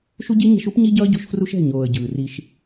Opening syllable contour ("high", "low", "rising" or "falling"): high